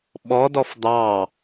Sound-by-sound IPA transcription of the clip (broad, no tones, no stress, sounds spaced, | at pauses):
ɓ ɔ d ɔ f d̪ ɑ